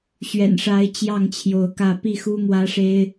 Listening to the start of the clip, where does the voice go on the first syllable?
low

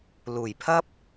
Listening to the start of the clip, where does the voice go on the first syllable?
low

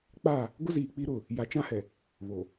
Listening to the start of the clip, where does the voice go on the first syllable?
falling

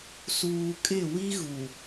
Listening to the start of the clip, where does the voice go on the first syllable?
low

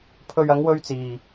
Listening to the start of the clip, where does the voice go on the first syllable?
low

